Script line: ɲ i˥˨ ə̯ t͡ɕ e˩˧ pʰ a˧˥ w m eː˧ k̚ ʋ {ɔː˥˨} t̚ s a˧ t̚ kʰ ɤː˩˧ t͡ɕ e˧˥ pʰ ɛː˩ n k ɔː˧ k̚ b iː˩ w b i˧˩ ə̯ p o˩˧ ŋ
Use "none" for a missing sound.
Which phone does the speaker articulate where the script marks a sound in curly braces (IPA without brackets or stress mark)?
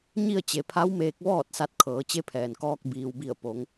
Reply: ɔː˥˨